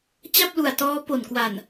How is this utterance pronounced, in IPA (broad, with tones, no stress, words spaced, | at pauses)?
t͡ɕa˥˩p̚lu˨˩a̯ tɔː˦˥ po˨˩nkwa˨˩n